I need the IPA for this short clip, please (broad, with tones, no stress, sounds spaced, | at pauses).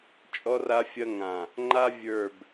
t͡ʃʼ ɔ˦ r a˦ fʲ ɐ˦ ŋ ã˨ | ŋ͡ǃ a˦ vʲ ə˞˦˨ b